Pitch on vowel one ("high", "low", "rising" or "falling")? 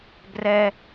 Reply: high